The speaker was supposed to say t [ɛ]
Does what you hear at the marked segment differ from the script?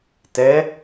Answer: no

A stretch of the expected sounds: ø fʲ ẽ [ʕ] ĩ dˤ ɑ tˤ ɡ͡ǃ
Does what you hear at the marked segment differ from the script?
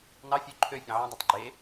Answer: no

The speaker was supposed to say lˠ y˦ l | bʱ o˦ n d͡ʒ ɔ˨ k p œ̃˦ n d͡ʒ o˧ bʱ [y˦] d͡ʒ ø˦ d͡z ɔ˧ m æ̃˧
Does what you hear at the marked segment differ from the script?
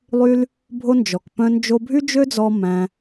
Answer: no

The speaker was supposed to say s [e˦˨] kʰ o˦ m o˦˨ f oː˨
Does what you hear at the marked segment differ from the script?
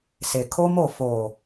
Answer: yes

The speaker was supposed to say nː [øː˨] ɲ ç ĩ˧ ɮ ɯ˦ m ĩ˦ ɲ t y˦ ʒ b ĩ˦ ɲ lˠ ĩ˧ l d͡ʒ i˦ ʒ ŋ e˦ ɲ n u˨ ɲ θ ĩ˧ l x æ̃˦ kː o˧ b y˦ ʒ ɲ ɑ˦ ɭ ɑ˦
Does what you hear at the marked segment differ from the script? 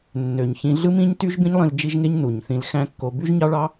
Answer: yes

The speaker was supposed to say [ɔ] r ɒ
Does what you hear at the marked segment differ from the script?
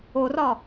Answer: yes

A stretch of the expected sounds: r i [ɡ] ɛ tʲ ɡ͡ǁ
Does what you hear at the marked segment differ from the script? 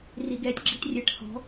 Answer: no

